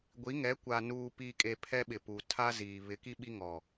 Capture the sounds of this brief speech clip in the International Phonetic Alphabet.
ɡʷ i˨˦ ŋ ɛ˨˦ kʷ a˨ n uː˨ p i˨ kʼ e˨ pʰ ɛ˦ ɓ ɪ˨ p u˨ tʰ a˦ z iː˨ β ɪ˨˦ k i˦ ɓ i˦ ŋ ɔ˨

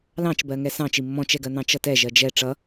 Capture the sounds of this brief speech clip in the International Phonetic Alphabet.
l ɑ̃ t͡ʃ b ɜ ŋ ɛ s ɑ̃ t͡ʃ i mː ɔ̃ t͡ʃ ɛ ɡ ɜ n̪ ɑ̃ t͡ʃ ʌ t ɛ ʒ ɜ d͡ʒ ɛ ʈ͡ʂ ʌ

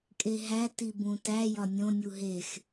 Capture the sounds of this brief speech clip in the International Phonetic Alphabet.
kʼ e ɦ æ t i b ũ t æ j ɒ nʲ õ nʲ u ɦ e x

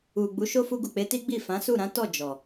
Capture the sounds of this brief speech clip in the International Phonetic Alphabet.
u˨ ɡ͡b u˨˦ ʃ o˦ f u˧ ɡ u˨ k͡p e˨˦ t i˦ ɡ͡b i˦˨ f ã˨˦ s u˦˨ ɾ ã˨˦ t ɔ˦˨ d͡ʒ ɔ˨

